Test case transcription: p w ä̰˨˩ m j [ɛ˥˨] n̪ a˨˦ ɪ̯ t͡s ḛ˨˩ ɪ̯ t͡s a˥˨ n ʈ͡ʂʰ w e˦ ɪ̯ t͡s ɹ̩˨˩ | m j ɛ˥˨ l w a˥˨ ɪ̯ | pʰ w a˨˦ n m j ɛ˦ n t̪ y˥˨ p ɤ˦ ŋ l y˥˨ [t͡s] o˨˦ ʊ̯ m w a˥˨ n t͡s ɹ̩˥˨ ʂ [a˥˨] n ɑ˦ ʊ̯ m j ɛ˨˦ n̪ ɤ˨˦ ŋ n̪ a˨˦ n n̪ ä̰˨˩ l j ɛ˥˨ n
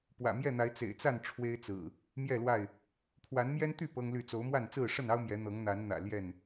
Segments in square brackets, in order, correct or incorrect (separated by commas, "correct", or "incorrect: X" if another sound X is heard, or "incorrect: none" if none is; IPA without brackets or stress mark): correct, correct, incorrect: ə˥˨